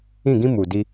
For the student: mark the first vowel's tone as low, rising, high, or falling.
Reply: falling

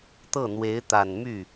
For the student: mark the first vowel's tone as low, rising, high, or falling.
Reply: falling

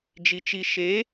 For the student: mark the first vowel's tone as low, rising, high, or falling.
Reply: low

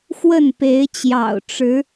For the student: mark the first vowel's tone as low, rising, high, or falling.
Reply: falling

